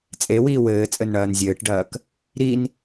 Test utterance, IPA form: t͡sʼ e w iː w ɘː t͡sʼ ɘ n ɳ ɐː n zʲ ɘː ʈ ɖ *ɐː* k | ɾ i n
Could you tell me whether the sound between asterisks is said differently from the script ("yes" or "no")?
no